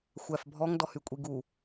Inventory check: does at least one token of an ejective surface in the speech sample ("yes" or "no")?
yes